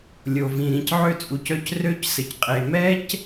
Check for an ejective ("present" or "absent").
present